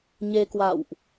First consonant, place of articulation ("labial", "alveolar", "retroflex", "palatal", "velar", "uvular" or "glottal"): palatal